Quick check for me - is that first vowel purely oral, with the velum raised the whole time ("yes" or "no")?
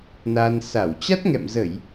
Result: yes